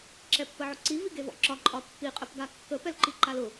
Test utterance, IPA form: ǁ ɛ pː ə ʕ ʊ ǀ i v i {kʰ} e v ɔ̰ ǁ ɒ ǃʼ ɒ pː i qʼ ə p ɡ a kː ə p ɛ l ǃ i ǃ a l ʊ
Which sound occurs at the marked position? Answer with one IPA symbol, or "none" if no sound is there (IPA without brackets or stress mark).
ɡ